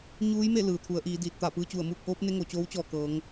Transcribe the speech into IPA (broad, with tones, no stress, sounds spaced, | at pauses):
ɲ uː˧˥ j m e˥˨ l ɯː˩ t̪ʰ u˩˧ ə̯ ʔ iː˩˧ d iː˧˩ t̚ t̪ a˧˩ p ɯː˧ t͡ɕ u˧˩ ə̯ m uː˥˨ k̚ ʔ oː˧˥ p̚ n e˧˥ ŋ o˩ t͡ɕ oː˧˥ w t͡ɕ ɔː˧˩ k ɤː˩˧ ŋ